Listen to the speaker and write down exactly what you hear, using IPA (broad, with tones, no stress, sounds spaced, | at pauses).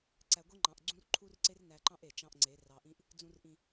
ǀ æ˨ ɡʷ e˦ ŋ͡ǃ ɑ̃˨ ʔ ɡ͡ǀ ũ˦ r ǃʰ u˦ r ǀ e˦ r n æ˨ ǃ ɑ̃˦ ʔ e˨ t͡ʃ ɑ̃˦ ʔ ŋ͡ǀ e˨˦ r ɑ˨ ʔ ĩ˦ ʔ | d͡z ũ˨ r ʔ ĩ˨